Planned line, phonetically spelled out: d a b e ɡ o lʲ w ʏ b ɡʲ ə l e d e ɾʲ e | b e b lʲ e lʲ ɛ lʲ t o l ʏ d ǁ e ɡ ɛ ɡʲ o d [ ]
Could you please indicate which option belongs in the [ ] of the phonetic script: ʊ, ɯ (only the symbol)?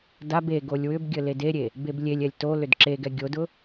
ʊ